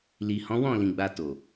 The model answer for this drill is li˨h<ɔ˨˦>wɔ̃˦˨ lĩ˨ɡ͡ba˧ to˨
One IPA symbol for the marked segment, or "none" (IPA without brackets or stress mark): ɔ̃˨˦